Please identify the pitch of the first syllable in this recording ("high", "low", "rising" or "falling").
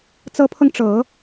rising